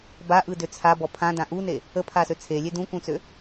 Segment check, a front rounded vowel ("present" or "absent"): present